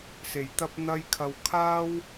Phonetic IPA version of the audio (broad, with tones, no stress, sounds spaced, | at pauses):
s e˨˩ j t̪ ɐ˧ p̚ n̪ ɐ˥ j kʰ ɐ˧ w kʰ aː˥ w